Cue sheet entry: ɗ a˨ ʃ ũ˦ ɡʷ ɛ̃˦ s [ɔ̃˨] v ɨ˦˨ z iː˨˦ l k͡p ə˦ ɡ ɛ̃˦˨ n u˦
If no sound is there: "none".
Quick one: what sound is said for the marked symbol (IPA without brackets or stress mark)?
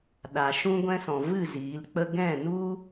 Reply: ɔ̃˨